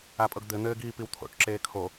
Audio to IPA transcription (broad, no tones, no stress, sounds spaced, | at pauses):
a pʼ ɤ ɡ d̪ ɘ n̪ ɘː ɡ iː p i w t̪ʰ o̰ ʈ ǁ eː kʰ o